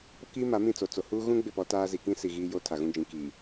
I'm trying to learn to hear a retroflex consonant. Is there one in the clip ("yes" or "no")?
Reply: no